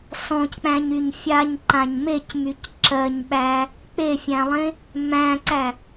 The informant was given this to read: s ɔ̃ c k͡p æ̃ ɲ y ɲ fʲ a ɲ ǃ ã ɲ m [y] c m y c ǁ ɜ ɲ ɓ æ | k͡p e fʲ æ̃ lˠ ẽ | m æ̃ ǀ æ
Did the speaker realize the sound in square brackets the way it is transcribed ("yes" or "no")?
no